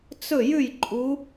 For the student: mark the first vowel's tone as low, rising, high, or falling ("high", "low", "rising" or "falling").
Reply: falling